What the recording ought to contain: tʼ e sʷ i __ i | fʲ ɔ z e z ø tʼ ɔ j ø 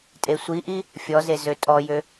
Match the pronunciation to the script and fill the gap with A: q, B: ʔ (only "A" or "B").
B